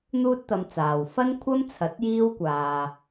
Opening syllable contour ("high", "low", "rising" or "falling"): high